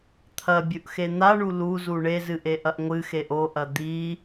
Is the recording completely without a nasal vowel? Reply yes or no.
yes